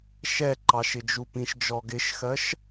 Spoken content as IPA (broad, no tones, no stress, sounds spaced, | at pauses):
ʃ ɛ ǃ ɑ ʃ ɪ d͡ʒ u p ĩ ʃ d͡ʒ ɔ ɡ ɪ ʃ x ɜ ʃ